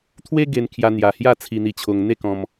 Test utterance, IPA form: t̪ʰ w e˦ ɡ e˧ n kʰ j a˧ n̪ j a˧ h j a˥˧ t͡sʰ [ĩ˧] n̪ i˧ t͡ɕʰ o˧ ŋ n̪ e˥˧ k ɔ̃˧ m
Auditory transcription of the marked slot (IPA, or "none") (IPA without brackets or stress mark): i˧